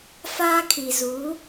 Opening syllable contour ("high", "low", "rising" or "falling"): high